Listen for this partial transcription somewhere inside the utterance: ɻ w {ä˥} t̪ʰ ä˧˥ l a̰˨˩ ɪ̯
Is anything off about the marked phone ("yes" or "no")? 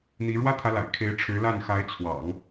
no